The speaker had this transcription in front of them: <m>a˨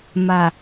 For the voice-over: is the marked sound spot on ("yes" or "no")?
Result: yes